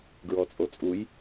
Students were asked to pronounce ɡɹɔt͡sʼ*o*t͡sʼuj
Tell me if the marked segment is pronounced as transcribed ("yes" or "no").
yes